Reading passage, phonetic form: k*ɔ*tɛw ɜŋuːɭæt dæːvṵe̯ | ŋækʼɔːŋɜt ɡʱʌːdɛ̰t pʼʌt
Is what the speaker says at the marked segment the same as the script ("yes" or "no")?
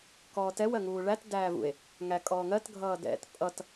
no